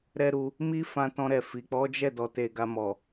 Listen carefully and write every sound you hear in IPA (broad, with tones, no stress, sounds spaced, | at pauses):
ɾ ɛ˦ ɾ u˧ | m i˦ f ã˦ t ɔ̃˦ ɾ ɛ˦˨ f i˨ k͡p ɔ˨˦ d͡ʒ ɛ˦˨ d ɔ˧ t e˧ ɡ a˧ m ɔ˨